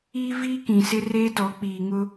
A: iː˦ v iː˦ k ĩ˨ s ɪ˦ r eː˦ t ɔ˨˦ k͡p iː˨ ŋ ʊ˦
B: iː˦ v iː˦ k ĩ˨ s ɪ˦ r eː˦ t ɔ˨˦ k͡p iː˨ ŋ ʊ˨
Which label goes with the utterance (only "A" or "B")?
A